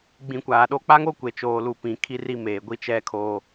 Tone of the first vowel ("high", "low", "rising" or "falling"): low